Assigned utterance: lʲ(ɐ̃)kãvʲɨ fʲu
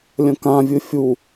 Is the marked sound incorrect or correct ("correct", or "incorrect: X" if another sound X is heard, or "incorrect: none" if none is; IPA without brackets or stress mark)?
correct